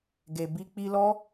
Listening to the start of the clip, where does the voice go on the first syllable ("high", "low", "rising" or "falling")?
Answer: low